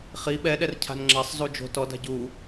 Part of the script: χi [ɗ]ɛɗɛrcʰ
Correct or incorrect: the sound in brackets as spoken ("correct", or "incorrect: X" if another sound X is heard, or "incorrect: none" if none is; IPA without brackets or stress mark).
incorrect: ɓ